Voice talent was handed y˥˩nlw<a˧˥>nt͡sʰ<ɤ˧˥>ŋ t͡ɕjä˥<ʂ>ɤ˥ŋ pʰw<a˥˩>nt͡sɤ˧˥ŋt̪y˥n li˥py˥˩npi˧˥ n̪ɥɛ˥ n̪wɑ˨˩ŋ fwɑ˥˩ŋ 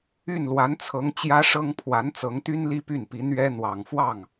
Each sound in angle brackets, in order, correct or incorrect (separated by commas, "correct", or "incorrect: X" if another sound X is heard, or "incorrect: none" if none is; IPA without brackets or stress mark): correct, correct, correct, incorrect: a˧˥